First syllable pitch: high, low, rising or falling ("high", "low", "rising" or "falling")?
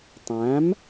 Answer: rising